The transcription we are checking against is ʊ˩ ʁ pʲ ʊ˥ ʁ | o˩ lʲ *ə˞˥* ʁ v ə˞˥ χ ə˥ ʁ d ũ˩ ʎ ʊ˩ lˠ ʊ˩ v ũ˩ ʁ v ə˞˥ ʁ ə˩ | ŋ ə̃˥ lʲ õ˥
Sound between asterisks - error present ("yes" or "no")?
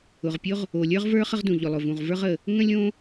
no